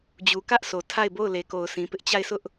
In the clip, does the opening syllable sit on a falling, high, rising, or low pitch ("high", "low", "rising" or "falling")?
low